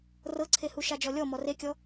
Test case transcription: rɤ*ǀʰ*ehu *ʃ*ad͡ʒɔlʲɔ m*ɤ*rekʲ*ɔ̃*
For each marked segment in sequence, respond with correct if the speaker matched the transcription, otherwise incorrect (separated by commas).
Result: correct, correct, incorrect, incorrect